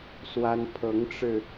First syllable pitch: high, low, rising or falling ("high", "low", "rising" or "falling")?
high